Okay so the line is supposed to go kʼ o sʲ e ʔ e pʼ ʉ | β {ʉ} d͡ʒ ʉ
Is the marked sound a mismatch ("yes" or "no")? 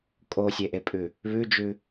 no